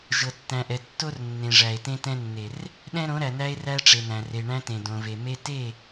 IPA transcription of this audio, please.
ʒɤ˨tːæ̃˨ʔɛ˨ tːo˦r nːẽ˨ʐæ˨e̯ tẽ˦tɛ̃˦nːe˨r | ɗɛ̃˦ɾõ˨˦ɾæ˨næ˦e̯ ræ˦ʈ͡ʂe˨næ̃˨ re˨ɳæ̃˦tẽ˨ dõ˨ve˨me˦ te˦˨

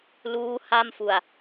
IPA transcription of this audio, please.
luː˦˥ ha˥˩mfu˨˩a̯

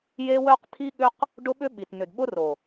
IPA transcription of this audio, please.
je˦wœ˦q t̪ʰi˦ɠʏ˦q | ɖʊ˦ɓʏ˦ɓi˨tn̪ʏ˨d ɓʊ˦ro˨

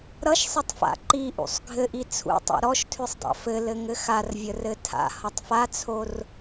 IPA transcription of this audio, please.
ɾʌʃsˤɪtˤfa̰ ǃiʔṵsˤ ɡʱɘʔi t͡sʰṵtˤa̰ ɾɔʃtʰʉsˤdˤa̰ fɘlɘŋɘ xarvʲərɘ tʰa̰hʌtˤ fat͡sʰor

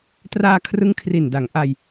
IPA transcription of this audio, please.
traː˧kʰrɯ˦˥ŋ kʰri˨˩nda˩˦ŋ ʔa˧j

